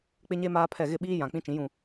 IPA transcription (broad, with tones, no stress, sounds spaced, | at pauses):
k͡p ɪ˦ ɲ e˦ m aː˦ pʰ ɛ˦˨ ɣ ɪ˦˨ ɓ iː˦ j ã˨ k͡p ĩ˦ t͡ʃ ĩ˨˦ j ũ˦˨